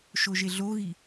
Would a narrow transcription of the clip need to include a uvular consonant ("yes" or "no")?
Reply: no